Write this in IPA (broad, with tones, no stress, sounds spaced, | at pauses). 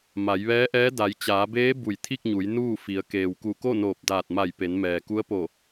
m a˩˧ j ʋ ɛː˧˥ ʔ ɛː˧˥ d a˩˧ j t͡ɕ aː˩˧ b eː˧˥ b u˧˩ j t̪ʰ i˥˨ k̚ ɲ u˩˧ j n uː˥˨ f i˩˧ ə̯ k eː˩ w k u˧˩ k o˥˨ n oː˧˩ p̚ d aː˧˩ t̚ m a˧˩ j p e˩˧ n m ɛː˩ k u˧˥ ə̯ p o˧˩